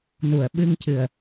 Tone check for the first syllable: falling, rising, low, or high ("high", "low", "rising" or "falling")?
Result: low